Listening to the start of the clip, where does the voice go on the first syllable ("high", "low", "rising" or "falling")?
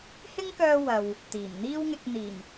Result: high